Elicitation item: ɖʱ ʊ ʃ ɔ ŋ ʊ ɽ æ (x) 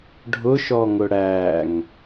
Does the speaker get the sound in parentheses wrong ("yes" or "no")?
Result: yes